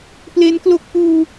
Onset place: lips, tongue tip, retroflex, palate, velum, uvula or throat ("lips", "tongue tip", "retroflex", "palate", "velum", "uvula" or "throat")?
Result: lips